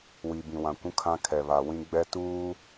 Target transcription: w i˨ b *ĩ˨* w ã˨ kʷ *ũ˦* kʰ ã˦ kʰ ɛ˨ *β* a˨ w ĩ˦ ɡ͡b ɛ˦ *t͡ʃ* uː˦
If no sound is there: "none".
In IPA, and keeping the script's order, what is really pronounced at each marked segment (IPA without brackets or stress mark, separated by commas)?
ĩ˨, ũ˦, β, t